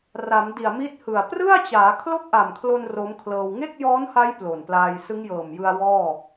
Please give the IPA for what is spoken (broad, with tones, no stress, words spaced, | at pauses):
ra˩˦mdi˨˩a̯mi˦˥t̚hɯ˨˩a̯ prɯ˥˩a̯t͡ɕaː˩˦ kʰlo˥˩k̚ʔa˨˩mkʰlo˧n ro˦˥mkʰlɤː˧w ŋe˥˩k̚jɔː˦˥nha˦˥j plo˨˩nplaː˧j sɯ˦˥ŋjɤː˨˩mjɯ˧a̯ wɔː˥˩